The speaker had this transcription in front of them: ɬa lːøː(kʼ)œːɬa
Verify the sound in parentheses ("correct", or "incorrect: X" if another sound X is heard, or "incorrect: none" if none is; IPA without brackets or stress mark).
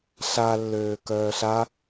incorrect: k